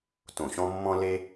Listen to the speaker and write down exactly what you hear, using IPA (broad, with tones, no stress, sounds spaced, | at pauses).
t õ˧˩ ɕ ɔ̃˥ mː ɔ̃˥ l e˥